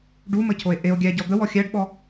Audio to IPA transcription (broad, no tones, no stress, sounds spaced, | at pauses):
ɖ u m ə cʰ o e̯ ʔ e o̯ ɡʲ æ ɟ ɔ d̪ ə w ɔ xʲ æ ɖ ɓ ɔ